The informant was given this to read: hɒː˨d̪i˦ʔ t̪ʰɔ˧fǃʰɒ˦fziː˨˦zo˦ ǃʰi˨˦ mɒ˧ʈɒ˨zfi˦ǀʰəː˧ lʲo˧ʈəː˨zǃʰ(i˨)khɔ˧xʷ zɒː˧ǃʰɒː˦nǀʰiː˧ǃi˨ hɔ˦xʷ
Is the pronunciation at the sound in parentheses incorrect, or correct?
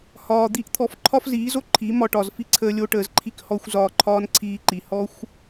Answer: incorrect